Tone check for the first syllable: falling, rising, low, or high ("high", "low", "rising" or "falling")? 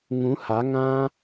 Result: rising